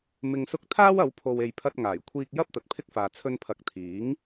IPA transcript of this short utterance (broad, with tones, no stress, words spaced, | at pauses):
mɪ˧ŋsʊ˥k̚ t̪ʰaː˥wɐ˨˧wpʰo˨w e˨jpʰɐ˧t̚ ŋaː˨˩jkʷʰiː˥k̚ jɐ˥p̚ t̪ɐ˨t̚pʰɪ˥k̚faː˨ t͡sʰɵ˧npʰɐ˨˥k̚t̪ʰiː˨˥ŋ